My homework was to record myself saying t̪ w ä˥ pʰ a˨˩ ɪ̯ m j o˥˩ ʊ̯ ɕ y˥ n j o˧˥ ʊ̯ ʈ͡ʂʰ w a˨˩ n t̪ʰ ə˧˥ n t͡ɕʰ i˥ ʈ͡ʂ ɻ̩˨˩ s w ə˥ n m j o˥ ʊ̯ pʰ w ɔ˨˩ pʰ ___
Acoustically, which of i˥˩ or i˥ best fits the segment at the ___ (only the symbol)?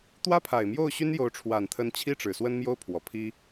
i˥